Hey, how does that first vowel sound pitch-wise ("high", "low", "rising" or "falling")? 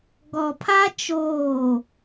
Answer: low